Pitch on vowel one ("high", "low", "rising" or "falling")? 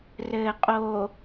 low